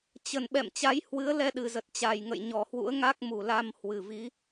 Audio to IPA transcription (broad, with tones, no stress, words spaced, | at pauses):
t͡ɕə˨˩n ɓɛ̰˧˨mt͡ɕa˨˦j hwɨ˨˦ə̯lɛ˧ɗɨ˨˩zə˨˩t̚ t͡ɕa˨˩jŋə̰˧˨jɲɔ˨˩hwṵ˧˥ə̯ ŋa˦˥k̚mu˨˩la˧m hwɨ˨˩vi˨˦